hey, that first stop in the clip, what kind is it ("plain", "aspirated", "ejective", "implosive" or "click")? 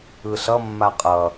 ejective